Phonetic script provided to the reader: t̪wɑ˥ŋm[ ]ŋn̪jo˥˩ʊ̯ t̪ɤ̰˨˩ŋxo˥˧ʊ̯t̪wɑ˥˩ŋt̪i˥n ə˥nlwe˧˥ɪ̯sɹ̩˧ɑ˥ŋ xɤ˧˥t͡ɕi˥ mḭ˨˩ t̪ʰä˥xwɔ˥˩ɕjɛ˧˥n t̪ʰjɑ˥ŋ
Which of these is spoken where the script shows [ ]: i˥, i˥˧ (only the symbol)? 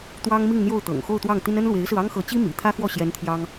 i˥˧